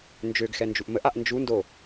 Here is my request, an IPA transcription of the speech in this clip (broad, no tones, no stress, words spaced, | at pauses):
nd͡ʒøɡxɛ nd͡ʒuʔməʔaʔ nd͡ʒundo